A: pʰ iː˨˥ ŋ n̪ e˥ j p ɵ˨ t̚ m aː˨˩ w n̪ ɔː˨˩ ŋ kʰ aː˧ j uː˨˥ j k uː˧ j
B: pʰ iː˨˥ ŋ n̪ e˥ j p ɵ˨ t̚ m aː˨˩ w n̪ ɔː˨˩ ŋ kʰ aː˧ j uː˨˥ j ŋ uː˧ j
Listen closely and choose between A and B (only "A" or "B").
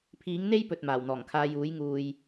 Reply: B